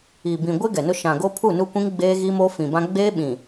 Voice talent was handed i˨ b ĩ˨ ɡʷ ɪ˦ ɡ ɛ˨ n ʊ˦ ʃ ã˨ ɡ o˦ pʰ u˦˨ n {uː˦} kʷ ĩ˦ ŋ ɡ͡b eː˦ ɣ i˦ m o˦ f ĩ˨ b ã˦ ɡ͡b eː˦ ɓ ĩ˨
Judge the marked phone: incorrect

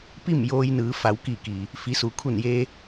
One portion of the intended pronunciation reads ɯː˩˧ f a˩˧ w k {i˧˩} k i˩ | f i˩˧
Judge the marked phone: correct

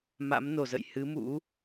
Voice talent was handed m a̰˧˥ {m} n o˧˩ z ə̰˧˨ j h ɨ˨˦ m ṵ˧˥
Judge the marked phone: correct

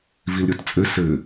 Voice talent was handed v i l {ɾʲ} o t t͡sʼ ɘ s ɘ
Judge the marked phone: correct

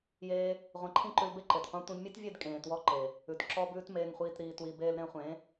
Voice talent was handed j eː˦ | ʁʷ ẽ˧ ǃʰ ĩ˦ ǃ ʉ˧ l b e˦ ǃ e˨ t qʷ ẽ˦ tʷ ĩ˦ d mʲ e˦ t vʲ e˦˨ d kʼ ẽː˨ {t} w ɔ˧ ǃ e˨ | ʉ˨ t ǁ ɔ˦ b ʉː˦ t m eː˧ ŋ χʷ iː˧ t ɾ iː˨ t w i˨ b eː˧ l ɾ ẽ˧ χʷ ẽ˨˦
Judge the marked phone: correct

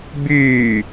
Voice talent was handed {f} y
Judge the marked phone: incorrect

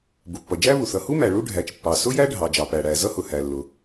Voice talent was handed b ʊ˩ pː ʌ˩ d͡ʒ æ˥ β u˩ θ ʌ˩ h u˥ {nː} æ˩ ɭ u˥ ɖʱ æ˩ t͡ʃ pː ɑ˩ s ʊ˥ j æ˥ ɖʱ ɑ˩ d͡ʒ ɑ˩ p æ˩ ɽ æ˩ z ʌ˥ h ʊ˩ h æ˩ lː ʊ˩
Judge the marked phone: incorrect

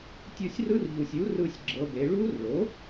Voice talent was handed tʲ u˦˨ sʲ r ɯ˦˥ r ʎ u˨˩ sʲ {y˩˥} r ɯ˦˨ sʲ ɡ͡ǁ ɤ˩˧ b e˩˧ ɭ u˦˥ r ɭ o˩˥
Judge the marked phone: incorrect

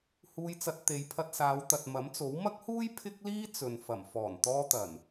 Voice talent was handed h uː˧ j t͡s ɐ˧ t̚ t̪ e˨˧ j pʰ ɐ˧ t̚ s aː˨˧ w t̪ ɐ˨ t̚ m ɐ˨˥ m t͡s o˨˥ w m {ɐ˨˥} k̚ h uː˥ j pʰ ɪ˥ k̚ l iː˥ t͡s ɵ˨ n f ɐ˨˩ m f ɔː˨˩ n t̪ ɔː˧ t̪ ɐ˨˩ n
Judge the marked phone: incorrect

